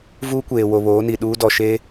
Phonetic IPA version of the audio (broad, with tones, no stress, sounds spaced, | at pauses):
v uː˦ kʷ eː˨ w o˨ β oː˨˦ n i˨ ɗ uː˦ d ɔ˨ ʃ eː˦